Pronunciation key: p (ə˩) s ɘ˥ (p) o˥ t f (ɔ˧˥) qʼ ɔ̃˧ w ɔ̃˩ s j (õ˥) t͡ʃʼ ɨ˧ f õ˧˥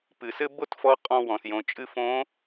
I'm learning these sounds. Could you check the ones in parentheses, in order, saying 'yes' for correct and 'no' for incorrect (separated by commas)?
no, no, yes, no